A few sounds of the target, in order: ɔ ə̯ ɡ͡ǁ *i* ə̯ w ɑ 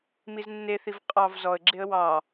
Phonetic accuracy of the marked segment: incorrect: e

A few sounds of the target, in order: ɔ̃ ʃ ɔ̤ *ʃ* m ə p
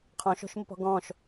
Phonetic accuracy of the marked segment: correct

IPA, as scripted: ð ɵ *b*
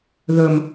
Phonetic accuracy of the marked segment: incorrect: m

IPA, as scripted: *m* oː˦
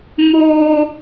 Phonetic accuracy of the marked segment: correct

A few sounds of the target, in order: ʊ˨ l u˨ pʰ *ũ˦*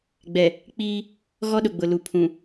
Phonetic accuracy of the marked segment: incorrect: ũ˨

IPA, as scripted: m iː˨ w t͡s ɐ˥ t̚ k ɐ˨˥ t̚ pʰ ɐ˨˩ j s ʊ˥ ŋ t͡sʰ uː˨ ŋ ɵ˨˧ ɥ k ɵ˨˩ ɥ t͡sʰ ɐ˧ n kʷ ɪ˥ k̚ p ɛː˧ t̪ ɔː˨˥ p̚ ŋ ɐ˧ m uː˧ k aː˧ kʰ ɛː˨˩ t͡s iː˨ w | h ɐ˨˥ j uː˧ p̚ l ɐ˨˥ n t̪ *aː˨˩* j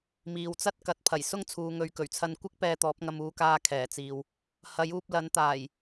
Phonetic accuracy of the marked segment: correct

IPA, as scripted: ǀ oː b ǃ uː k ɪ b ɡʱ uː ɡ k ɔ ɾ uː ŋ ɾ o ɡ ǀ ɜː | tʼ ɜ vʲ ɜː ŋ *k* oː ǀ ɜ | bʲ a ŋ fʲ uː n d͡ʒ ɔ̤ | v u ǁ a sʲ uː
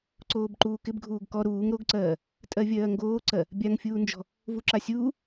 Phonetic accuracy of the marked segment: incorrect: ɡ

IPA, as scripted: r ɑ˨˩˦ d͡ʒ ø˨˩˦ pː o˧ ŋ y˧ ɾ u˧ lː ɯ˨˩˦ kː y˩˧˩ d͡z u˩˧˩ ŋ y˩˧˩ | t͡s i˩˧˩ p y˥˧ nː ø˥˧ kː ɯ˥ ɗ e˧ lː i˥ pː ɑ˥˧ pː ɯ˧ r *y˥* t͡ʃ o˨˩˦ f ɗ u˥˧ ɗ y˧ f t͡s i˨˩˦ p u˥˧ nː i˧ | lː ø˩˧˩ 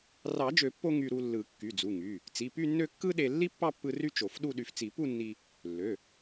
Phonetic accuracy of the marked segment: correct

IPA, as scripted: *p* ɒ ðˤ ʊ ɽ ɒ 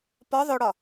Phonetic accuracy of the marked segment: correct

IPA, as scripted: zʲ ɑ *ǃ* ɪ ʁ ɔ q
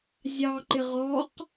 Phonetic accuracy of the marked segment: correct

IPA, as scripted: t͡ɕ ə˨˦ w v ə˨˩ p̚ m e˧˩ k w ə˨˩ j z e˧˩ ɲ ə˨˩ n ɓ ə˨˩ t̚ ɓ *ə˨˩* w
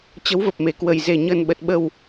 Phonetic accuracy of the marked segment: correct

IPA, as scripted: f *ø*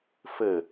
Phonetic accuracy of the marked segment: incorrect: ɘ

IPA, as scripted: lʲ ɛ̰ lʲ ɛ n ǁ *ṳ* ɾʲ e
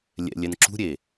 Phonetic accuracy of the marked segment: correct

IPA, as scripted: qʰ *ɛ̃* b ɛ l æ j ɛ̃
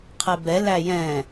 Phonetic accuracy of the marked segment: incorrect: ɛ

